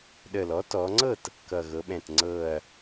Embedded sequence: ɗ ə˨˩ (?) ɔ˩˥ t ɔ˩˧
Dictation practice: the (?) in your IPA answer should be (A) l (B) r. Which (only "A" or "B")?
A